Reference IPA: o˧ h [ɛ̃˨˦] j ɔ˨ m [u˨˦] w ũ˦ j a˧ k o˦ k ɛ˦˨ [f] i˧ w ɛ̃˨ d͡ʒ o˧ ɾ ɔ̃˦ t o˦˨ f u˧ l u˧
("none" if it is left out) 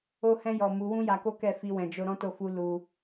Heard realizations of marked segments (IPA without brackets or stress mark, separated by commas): ɛ̃˧, u˨˦, f